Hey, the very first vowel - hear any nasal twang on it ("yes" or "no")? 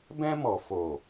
yes